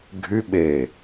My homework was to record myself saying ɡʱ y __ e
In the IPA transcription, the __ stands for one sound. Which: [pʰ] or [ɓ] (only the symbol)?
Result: ɓ